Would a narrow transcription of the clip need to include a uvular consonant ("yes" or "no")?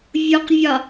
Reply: yes